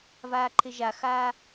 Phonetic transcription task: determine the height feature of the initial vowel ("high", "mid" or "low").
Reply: low